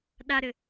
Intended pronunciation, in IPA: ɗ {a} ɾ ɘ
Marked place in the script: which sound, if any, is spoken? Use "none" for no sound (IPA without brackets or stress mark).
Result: a